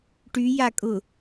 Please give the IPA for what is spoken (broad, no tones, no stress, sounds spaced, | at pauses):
ʈ y j a kʼ ʊ